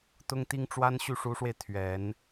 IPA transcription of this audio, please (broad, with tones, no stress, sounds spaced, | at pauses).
t̪ ʊ˥ ŋ t̪ i˥ ŋ ʈ͡ʂ w a˥ n ɕ y˥˩ ʂ u˧˥ ʂ w e˧ ɪ̯ t̪ʰ ɥ ɛ˨˩˦ n